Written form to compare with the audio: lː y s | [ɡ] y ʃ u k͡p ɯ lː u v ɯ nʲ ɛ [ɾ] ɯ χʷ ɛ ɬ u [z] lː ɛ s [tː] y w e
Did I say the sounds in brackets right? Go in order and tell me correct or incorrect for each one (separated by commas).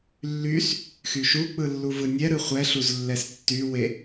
incorrect, correct, correct, correct